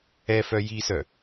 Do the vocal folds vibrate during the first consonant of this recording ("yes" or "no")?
no